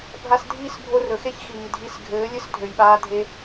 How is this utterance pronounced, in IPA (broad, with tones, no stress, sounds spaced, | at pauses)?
bʱ a˧ s dʱ iː˦ s bʱ o˧ r ɵ˨ x e˦ ç x iː˨ dʱ i˧ s ɡʱ ɘː˨˦ lʲ ɘ˦ s dʱ ø˧ j ɓ aː˦ dʱ e˦